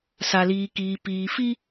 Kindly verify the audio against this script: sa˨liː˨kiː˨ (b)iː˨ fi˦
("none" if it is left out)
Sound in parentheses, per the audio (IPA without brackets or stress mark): p